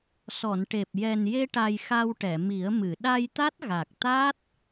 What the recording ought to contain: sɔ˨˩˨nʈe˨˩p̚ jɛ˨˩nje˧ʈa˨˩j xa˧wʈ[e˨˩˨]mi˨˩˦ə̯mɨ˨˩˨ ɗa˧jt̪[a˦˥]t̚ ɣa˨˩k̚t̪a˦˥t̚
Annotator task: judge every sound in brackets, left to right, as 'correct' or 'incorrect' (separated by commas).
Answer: incorrect, correct